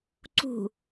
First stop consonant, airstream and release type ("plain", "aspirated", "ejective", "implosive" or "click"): click